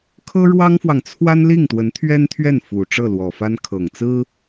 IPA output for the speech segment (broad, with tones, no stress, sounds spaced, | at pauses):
kʰ ɤ˥ ɻ w ɑ˥ ŋ f w ɑ˨ ŋ t͡sʰ w a˥ n l i˥˩ ŋ t̪ w ə˧˥ n t̪ʰ ɥ ɛ˥ n t̪ʰ ɥ ɛ˥˩ n f u˨˩ ʈ͡ʂ ɤ˥˩ l w ɔ˨˩ f a˥ n kʰ ɤ˨˩ ŋ t͡s ɹ̩˥